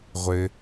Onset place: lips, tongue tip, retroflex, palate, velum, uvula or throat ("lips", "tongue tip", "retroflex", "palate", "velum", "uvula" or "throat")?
uvula